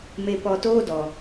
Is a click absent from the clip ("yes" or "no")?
yes